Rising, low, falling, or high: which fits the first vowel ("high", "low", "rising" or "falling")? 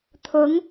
rising